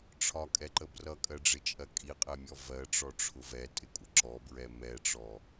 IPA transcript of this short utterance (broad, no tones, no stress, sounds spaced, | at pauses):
ʈ͡ʂʰ ɒ kʼ ɛ ǃ ə b r ʌ kʼ ɜ ɖ͡ʐ ɪ t͡ʃʼ ɜ kʼ i qʼ ɛ mʲ ɔ v ɜ ʈ͡ʂ ɔ ʈ͡ʂʰ ʊ v ɛ tʼ ɪ kʷʼ ə ǁ ɔ b ɹ ɛ m ɛ ʈ͡ʂ ɔ